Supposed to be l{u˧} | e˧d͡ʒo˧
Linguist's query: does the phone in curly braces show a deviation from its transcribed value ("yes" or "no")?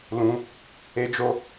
yes